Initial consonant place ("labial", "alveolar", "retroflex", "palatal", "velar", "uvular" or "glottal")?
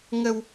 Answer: velar